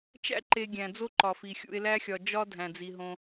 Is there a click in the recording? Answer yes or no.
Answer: yes